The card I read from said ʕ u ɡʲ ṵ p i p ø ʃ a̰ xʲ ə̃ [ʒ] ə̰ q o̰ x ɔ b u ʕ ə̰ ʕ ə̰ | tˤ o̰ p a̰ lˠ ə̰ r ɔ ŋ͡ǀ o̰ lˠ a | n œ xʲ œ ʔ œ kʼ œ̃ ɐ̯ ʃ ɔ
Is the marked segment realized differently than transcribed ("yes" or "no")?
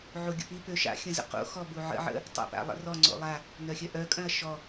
yes